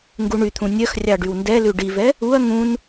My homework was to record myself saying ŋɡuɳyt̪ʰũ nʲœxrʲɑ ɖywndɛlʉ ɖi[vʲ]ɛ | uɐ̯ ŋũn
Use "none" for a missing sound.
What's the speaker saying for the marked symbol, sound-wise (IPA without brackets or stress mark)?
v